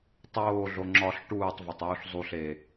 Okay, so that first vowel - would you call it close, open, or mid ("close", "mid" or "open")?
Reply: mid